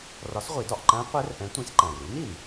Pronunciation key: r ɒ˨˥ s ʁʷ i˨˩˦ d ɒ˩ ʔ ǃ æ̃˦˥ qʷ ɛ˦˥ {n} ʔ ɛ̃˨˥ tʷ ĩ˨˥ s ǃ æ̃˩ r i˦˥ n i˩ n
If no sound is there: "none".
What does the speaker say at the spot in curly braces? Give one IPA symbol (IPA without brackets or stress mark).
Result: r